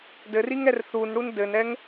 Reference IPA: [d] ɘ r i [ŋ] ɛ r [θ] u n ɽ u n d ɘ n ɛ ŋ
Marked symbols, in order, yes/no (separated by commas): yes, yes, yes